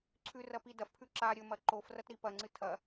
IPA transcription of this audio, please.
ǀʰʉrɐpi dɐfpʰʉ ǁa ɾʲɵmɐ ǃofrɐtɾi pɐŋ͡ǀɨ tʰɐ

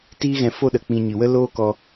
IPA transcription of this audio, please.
tiː˦ɣɛ̃˧fo˦ɗə˨ k͡pĩ˧ ɲɨ˨wə˦ loː˦ kɔ˦

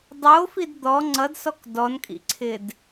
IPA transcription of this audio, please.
dˤofid d̪ɔ ŋ͡ǀʌdsɔk dɔnkʼḭǀʰɪd

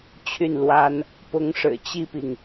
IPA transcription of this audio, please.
t͡ɕʰy˥˩nlwa˥n | pʊ˧˥ŋʂɻ̩˨˩ t͡ɕi˥˩pi˩ŋ

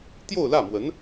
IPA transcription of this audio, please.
t̪jo˥˧ʊ̯lä˥˩mwə˧˥n

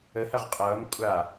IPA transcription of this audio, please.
əhɐʁ qʼʌːm kʷʼa

